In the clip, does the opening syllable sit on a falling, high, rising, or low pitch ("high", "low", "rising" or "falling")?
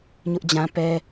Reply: high